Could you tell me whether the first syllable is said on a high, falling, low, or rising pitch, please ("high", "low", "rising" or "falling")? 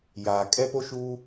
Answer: low